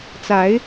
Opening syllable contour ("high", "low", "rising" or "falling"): rising